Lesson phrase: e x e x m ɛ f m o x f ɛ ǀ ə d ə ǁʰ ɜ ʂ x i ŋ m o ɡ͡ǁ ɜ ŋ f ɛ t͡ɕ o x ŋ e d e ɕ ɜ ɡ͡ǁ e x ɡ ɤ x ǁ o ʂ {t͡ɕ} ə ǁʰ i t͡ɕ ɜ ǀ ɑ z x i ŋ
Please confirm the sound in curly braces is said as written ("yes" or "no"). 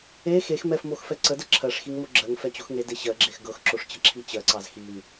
yes